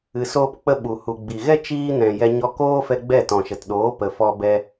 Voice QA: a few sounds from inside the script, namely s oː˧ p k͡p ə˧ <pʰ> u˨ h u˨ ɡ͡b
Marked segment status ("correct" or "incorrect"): incorrect